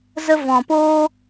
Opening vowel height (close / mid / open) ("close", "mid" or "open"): mid